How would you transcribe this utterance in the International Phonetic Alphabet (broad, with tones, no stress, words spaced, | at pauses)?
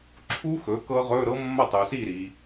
ǁʰu˦˥xɵ˩˥ kɤ˦˥ʁɵ˧˥˧ ɾɤ˦˥mːɐ˥˩tˤu˩˧si˥˩ ɾi˩˧